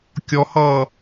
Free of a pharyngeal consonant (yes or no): yes